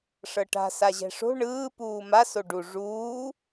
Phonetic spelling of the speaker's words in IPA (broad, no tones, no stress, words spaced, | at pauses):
ʂɤʈa̤ saʑɛ̤ʂo̤ ɳɯː puːma soɖu ʐuː